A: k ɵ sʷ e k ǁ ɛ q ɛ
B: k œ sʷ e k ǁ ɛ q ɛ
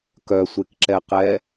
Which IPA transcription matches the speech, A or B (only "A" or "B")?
B